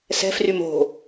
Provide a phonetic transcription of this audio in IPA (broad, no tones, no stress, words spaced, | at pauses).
sɛ̤frym o̤